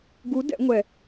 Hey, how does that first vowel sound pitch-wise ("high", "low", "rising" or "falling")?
rising